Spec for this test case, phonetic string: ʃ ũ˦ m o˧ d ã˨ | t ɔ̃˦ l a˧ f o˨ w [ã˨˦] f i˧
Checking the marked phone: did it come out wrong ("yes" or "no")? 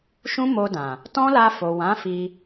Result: no